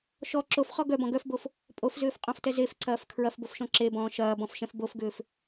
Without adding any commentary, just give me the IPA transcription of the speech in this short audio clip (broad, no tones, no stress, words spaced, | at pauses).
ʃɔ ǁofχɔ ɡœbɔ̃ ɡœfbof | pʼofzʏːfqʼɔ̃ftɛ zefǀɐːf kʰɹɐfbofʃɔ̃ ǁebɔ̃ː ʃɐːbɔ̃fʃɛ̃f bofɡʏːf